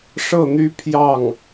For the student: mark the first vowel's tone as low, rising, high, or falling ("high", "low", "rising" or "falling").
falling